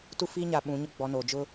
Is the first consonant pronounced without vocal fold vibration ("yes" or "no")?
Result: yes